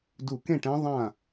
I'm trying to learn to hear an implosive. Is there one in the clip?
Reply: no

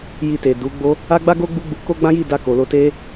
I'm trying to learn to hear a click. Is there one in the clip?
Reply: no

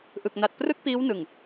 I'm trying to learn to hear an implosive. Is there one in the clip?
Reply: no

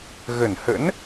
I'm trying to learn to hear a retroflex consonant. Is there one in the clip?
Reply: no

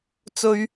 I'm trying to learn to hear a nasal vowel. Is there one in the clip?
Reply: no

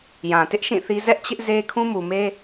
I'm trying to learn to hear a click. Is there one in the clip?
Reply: no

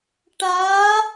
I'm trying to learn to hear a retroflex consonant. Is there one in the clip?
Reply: yes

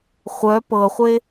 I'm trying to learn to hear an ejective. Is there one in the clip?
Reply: no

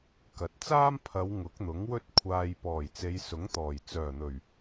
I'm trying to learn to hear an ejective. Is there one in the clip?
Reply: no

